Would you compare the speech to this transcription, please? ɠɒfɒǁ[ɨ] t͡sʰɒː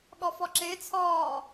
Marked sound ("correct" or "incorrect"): incorrect